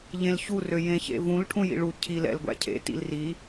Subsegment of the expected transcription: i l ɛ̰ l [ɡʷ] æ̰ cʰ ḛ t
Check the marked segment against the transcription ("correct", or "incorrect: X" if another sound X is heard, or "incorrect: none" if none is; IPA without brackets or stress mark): correct